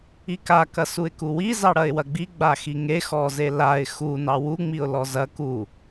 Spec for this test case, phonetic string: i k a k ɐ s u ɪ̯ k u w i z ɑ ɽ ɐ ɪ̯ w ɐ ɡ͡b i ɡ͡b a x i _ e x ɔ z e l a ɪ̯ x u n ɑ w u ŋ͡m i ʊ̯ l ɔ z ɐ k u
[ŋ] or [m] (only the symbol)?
ŋ